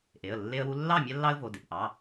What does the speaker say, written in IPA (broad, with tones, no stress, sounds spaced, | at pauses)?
ʔ e˩˧˩ ə̯ lː e˦ ə̯ w u˦ lː ɑ˥˨ mʲ a˦ lː ɑ˦ ə̯ v o˩˧˩ d e˩˧˩ p ʔ ɑ˩˧˩